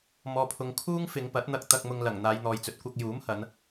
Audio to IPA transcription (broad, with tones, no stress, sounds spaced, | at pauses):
m ɔː˨ pʰ ʊ˨ ŋ kʰ uː˥ ŋ f ɪ˨˧ ŋ p ɐ˨˥ t̚ n̪ ɐ˧ k̚ t̪ ɐ˧ k̚ m ʊ˧ ŋ l ɐ˨˩ ŋ n̪ aː˨˧ j n̪ ɔː˨ j t͡s ɵ˨ t̚ kʷ ɐ˧ k̚ j uː˨˥ m h ɐ˨˧ n